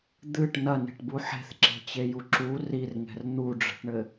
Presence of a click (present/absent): present